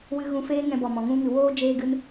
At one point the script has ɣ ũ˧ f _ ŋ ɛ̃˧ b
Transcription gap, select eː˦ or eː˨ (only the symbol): eː˦